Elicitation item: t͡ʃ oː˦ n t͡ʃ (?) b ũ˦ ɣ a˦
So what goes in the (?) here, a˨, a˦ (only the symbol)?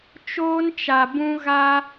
a˨